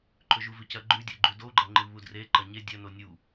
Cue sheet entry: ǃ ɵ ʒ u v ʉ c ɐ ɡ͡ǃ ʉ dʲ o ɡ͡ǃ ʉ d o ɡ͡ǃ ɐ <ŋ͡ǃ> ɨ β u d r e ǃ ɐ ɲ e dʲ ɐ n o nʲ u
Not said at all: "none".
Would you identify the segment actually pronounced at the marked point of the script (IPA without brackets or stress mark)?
ŋ͡ǃ